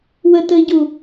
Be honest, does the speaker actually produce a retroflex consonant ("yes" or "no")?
no